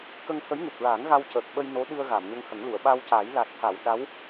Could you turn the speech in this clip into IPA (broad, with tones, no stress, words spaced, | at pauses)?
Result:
kə˧ŋt̪ʰə˧˥jŋu˨˩p̚ɹa˨˩˦ŋ ɣa˧wcəː˨˩k̚ɓə˧j no˧˥ɗɨ˧ə̯ ɣa˨˩˨mɲə˧ŋhə˨˩˦ŋlu˨˩˨ə̯ ɓa˧wca˨˩˦jla˨˩t̚t̪ʰa˨˩˨w ɗa˧˥w